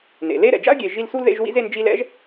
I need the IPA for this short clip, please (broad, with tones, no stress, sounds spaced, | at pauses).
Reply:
n ḛ˩ l e˦ ɾ ɛ̰˩ d͡ʒ a̰˥ ə̯ ɡʲ e˨ ʒ i˦ l s u˥ l ð ḛ˦ ʒ w ḭ˥ z e˦ n d͡ʒ i˦ l ɛ̰˥ ʒ